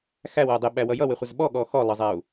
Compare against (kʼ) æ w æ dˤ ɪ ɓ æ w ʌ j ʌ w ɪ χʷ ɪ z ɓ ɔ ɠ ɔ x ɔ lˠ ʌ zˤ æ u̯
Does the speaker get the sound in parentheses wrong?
yes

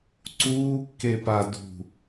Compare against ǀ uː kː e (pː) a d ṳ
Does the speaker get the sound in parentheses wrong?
yes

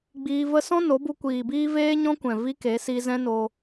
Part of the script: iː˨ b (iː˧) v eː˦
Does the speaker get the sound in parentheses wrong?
yes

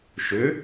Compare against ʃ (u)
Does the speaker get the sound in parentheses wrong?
yes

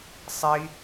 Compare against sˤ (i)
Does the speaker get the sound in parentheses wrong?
no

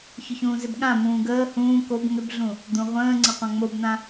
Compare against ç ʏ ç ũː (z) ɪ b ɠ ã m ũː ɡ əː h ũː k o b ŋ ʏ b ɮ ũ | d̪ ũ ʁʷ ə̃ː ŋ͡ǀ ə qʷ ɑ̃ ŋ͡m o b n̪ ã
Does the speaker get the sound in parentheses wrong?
no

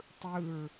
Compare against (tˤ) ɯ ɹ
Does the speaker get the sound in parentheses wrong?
no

